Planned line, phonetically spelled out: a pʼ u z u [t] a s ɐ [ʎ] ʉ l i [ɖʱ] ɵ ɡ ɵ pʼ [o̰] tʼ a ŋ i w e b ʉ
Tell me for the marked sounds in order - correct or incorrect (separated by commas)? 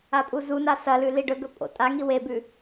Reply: incorrect, incorrect, incorrect, correct